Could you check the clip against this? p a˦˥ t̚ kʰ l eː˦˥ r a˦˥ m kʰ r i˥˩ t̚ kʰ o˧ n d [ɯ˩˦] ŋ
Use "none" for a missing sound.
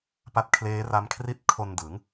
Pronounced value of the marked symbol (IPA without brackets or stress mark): ɯ˩˦